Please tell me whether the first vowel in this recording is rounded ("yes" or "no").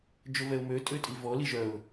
yes